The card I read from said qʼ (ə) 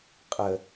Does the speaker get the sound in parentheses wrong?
no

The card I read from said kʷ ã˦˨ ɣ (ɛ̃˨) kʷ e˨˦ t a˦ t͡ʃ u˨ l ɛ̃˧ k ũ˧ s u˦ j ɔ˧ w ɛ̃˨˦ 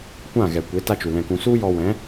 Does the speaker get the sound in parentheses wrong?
yes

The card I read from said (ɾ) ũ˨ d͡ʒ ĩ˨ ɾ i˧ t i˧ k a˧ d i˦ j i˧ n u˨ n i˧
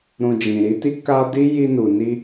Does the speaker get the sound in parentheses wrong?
no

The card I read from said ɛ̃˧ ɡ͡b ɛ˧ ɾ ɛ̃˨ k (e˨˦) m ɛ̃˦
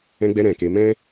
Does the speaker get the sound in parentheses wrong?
no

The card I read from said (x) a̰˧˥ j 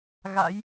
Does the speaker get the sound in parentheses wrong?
yes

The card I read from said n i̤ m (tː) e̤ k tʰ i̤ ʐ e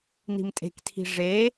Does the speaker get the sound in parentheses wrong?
yes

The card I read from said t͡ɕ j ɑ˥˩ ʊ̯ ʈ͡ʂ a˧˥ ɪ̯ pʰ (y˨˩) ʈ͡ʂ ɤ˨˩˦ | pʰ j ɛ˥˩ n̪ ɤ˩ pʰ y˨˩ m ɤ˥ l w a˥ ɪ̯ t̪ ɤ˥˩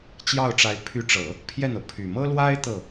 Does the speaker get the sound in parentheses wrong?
yes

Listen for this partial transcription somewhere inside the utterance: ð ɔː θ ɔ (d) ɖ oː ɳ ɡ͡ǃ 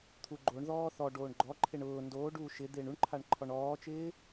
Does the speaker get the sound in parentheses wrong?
yes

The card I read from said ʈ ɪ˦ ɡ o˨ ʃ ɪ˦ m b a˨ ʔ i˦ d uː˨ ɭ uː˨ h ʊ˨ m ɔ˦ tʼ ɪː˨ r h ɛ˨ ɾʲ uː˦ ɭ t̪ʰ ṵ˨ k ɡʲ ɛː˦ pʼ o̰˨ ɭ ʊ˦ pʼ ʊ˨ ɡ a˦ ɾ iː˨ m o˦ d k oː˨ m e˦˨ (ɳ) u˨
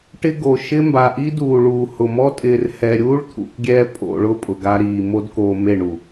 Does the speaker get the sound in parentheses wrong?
no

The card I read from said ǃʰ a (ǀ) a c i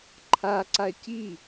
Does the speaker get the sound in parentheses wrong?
no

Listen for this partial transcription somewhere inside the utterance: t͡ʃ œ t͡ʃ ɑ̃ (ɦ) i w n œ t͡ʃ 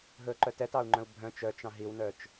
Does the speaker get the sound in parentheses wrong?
no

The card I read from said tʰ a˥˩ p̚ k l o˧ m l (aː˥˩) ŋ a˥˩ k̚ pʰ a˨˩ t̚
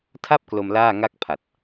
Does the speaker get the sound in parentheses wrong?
no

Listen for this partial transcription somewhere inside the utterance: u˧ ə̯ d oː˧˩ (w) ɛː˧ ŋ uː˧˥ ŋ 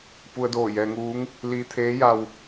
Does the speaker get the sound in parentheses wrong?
yes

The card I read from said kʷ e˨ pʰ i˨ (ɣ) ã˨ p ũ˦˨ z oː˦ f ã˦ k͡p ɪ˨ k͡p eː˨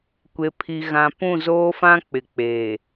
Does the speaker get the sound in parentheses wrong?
no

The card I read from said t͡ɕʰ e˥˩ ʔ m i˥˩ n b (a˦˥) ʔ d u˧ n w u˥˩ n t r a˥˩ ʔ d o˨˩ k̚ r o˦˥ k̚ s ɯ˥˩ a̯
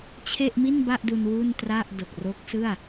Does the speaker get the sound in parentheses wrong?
yes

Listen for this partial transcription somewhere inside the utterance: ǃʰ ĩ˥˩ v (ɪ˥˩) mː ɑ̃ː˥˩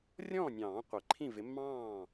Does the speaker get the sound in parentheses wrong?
yes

